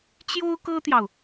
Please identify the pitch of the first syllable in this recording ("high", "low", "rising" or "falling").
high